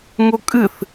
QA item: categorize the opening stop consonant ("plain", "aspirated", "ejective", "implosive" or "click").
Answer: ejective